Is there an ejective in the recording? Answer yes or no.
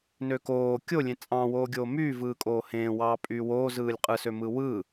yes